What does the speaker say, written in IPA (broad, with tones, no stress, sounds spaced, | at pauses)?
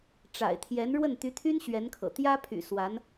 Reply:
ʈ͡ʂ a̰˨˩ ɪ̯ t̪ʰ j ɛ˧˥ n ɻ w ə˥˩ n t̪ y˧˥ t̪ʰ y˥ n ɕ ɥ ɛ˧˥ n kʰ ɤ̰˨˩ t̪ j ä˥ pʰ y̰˨˩ s w a˧˥ n